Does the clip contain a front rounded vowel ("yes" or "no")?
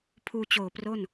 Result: no